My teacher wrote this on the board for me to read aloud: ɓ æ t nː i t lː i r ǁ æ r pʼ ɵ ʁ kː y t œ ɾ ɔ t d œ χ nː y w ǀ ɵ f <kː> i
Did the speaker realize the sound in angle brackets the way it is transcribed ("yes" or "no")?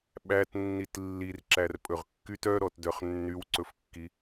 yes